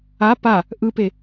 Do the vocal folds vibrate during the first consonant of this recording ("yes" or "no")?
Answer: no